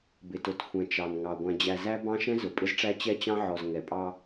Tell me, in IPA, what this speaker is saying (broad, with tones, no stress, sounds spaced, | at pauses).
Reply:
b ɪ˨ t ʊ˨ t xʷ ɛ̃˨ t͡ʃ ɑ˨ n ŋ ɑ˨ ɡʷ æ̃˨ d͡ʑ æ˨ z æ˦ b ɑ̃˦ ʃ ɛ̃˦ z ʊ˨ pʼ ɪ˦ z ʈ͡ʂ æ˦ t͡ɕ ɛ˦ t͡ɕ ɑ̃˦ ʕ ɔ˨ z ŋ ɛ˨ pʼ ɑ˦